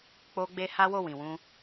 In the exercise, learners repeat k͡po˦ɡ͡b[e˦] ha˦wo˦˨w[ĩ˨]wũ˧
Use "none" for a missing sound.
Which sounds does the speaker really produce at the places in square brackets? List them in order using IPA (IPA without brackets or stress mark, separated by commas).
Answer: e˦, ĩ˨